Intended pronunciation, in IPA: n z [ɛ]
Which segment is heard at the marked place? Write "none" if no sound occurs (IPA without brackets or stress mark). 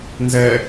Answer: ɛ